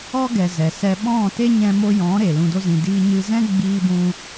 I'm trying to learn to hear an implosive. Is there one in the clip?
yes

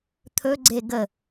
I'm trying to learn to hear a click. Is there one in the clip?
yes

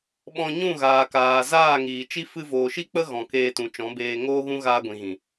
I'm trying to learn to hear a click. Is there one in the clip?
no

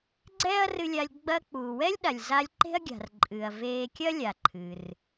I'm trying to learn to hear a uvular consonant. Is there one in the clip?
no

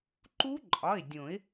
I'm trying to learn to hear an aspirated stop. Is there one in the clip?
no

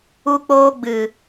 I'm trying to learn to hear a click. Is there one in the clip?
no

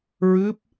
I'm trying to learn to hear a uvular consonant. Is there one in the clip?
no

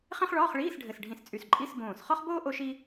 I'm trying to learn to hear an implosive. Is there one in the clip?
no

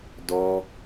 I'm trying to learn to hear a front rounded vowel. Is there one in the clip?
no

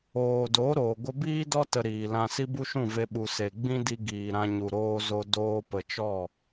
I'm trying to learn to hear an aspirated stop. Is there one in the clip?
no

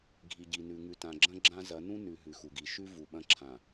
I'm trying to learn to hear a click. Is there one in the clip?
yes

